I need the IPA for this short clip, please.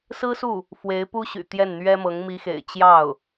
sɹ̩˥su˥˩ | fwe˧˥ɪ̯pu˥ɕy̰˨˩ t̪jɛ˥˩nn̪ɥɛ˥mɤ˧˥ŋ mi˧˥xḛ˨˩ɪ̯ t͡ɕjɑ˥˩ʊ̯

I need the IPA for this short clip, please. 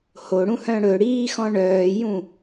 hoɽũhœ̃ ɽɵɽiːxɔ̃ ɳœːjũ

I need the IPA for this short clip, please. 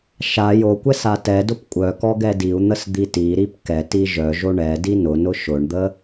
ʃa jokʷɛs atɛdʊp kʷʼœkɔ ɡɛdiu̯n̪əs d̪itiɾip kɛti ʒœʒo ɳɛ dinʊnʊ ʃʊɳd̪ə

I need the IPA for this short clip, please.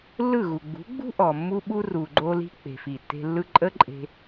lːɯ˦˨ɣu˨ ɡ͡bṳ˨˦ɡ͡bṳ˦ ʔɔ˨ mːu˦ɓu˦ ru˨ɡ͡ǃo˧li̤˧ k͡pe̤˨fi˨tːe̤˧lːɯ˦ ǃʼə˦ǃʼe̤˧

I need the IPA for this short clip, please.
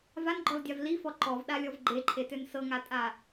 vanɡ͡ǃɔldʲav lifɔ ǃɔvɗalʲɔv ɡ͡ǃeǃʰetøn sɤŋatʼa

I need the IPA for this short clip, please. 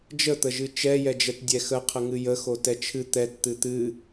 d͡ʒət̪ə ʒɨt͡ʃɛjɛd͡ʒɛt dʲɛxəqʰə ŋɨjə xotɛt͡ʃʰɨ t̪ɛt t̪ɨt̪ɨ

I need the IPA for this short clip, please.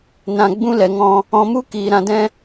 nã˧ ɡ͡bũ˦lɛ˨ŋɔ̃˧ | ɔ̃˧mu˦ kiː˨ ɾã˧dɛ̃˦

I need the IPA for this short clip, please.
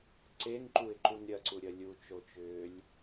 ǀeŋǃuɪ̯ǃun ɾʲɐǀuɾʲɐ lʲut͡ʃot͡ʃʏːlʲ

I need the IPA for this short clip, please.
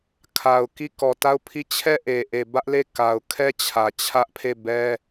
kʰa˨ʊ̯ki˦˨ kɔ˨ta˦˨ʊ̯pʰi˦˨ t͡ɕʰɛ˦˨ʔe˨ ʔe˨bä˦ʔle˦˨ ka˨ʊ̯kʰɛ˦t͡ɕʰä˨ t͡ɕʰä˦ʔpʰe˦˨bɛ˦

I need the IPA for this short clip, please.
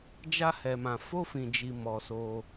d͡ʒa˦hɛ˧mã˧ fo˦fĩ˧d͡ʒi˧ mɔ˧so˧

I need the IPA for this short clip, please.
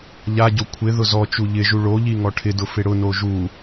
ʎaɟo kʷʰɪ ðʊzɔt͡ʃu ʎɪʒu ɭoʎi ŋɔʈʰɪdʊ fɪɽʊno ʒu

